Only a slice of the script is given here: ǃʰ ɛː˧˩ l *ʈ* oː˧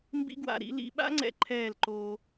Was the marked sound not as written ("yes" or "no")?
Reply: yes